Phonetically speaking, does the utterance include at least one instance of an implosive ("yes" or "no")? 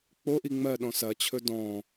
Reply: yes